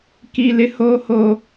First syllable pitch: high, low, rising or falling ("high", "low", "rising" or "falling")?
low